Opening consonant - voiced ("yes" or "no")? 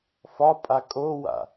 no